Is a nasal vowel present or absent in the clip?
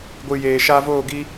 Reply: absent